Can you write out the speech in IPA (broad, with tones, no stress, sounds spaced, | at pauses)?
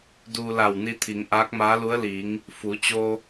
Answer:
d uː˧ l a˧˩ w n i˧ t̪ʰ i˩˧ ŋ ʔ aː˧˥ k̚ m aː˧˥ l u˧˥ ə̯ l iː˩˧ ŋ | f u˩˧ t͡ɕ o˧